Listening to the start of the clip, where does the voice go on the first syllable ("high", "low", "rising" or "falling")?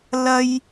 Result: high